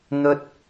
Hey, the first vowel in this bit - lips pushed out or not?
yes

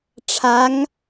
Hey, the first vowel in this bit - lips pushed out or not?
no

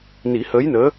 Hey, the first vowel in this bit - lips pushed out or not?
no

